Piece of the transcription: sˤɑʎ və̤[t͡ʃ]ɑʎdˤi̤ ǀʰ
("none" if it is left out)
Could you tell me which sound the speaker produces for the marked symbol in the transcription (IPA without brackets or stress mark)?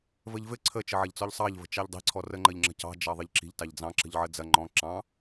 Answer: t͡ʃ